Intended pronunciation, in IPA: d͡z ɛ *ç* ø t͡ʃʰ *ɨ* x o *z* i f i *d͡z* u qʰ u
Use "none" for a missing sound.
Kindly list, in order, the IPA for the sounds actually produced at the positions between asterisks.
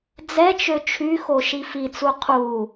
t͡ʃ, y, ʃ, t͡s

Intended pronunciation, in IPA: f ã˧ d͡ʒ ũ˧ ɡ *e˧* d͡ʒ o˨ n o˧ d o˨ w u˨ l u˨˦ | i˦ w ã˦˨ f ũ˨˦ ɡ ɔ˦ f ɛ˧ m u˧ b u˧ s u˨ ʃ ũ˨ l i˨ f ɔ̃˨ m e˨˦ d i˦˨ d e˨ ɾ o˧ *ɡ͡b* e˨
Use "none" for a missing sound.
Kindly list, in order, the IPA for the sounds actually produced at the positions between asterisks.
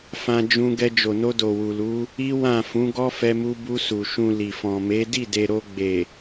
ɛ˧, ɡ͡b

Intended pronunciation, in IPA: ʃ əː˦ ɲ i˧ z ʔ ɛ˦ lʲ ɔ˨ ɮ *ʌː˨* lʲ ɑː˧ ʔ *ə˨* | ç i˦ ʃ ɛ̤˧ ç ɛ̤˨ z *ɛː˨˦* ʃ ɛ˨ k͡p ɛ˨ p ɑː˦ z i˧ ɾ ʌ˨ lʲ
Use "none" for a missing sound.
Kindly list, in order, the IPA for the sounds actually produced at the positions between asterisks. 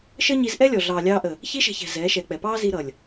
ɑː˨, ə˨, ɛː˨˦

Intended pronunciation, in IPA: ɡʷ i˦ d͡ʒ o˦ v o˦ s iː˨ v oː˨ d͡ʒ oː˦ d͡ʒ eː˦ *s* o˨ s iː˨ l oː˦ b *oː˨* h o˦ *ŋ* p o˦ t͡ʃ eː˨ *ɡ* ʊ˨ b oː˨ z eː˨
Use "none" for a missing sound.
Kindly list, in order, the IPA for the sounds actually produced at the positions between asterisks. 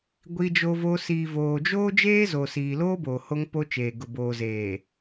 z, oː˨, ŋ, ɡ

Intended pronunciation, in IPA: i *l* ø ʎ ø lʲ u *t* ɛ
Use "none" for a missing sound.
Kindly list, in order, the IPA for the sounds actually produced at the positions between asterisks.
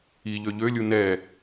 ʎ, n

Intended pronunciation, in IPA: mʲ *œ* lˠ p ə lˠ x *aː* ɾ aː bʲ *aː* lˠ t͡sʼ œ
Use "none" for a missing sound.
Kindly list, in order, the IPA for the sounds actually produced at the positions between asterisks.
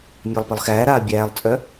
æ, æː, æː

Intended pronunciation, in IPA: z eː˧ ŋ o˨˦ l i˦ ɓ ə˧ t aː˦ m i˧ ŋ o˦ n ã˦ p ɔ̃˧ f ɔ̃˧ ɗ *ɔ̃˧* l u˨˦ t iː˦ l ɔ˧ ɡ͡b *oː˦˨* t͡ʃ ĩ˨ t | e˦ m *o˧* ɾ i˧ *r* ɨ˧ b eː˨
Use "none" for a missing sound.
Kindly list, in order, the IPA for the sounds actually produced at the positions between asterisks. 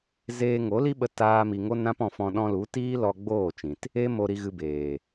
ɔ̃˧, oː˦˨, o˧, ɣ

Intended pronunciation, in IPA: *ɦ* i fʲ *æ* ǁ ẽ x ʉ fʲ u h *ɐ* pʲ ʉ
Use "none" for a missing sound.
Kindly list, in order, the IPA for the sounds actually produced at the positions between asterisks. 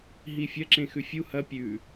ɦ, ɐ, ɐ

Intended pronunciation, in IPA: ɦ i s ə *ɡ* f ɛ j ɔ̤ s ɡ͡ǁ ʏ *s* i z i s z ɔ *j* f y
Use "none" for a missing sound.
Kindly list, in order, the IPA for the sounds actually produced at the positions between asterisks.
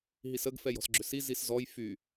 ɡ, s, j

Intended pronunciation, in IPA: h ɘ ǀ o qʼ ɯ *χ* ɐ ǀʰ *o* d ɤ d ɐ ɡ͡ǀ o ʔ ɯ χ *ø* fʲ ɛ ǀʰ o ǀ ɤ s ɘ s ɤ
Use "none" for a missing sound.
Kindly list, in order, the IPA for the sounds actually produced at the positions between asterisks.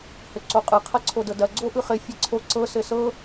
qʰ, o, ɘ

